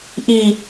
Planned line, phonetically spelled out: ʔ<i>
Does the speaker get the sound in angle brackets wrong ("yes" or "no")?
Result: no